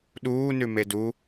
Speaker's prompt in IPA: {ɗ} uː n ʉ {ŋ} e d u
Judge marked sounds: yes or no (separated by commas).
yes, no